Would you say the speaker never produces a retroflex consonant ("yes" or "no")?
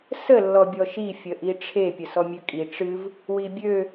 no